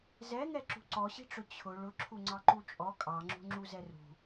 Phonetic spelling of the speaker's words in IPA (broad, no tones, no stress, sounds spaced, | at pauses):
z ɛ ŋ ɛ ǁ ṳ ǀ ɔ ɕ i̤ ʈ͡ʂ ʊ t͡ɕʰ ʊ ɭ ʊ ǁʰ u ŋ͡ǀ ɑ ǃ u t͡ʃʼ ɔ kʼ ɑ ŋ͡ǁ ṳ ŋ͡ǁ u z ɛ r ṳ